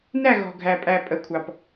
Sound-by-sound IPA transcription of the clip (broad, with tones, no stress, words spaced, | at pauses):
næ˦˨ɣɔ̤˨ɡʱæ˨ pʼæ˨pʼə˨kʷʰɑ˨p